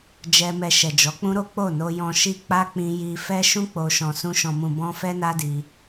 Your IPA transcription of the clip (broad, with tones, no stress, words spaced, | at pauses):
d͡ʒɛ˧mɛ˧ ʃɛ˨d͡ʒɔ˨˦k͡pũ˦ɾo˦ k͡po˦˨no˧jɔ̃˧ ʃi˧ k͡pa˦k͡pĩ˧ ji˧ fɛ˦ʃũ˦ k͡po˧ ʃɔ̃˨sũ˧ ʃɔ̃˨mũ˨bɔ̃˧ fɛ˦na˦ di˧